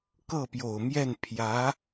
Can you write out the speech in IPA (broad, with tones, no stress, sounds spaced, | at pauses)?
k ɤ˥˩ p j o˨˩ ʊ̯ m j ɛ˥˩ n pʰ j ä˧˥